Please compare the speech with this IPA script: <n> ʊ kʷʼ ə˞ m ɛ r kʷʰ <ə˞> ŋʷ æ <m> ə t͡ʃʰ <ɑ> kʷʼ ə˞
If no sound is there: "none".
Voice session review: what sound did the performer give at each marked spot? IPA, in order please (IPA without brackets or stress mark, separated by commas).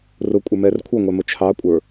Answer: r, ʌ, m, ɑ